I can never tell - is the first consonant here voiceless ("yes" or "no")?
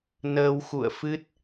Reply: no